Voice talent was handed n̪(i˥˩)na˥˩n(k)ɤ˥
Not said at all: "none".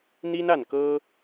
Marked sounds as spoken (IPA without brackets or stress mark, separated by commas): i˥, k